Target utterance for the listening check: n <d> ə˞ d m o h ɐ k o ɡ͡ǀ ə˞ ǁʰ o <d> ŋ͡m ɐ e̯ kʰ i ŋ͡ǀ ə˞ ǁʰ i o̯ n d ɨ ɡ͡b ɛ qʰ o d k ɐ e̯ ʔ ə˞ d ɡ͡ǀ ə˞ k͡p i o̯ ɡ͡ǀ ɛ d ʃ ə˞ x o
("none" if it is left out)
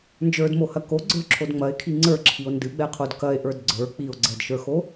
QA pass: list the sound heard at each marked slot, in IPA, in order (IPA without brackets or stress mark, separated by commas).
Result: d͡ʒ, d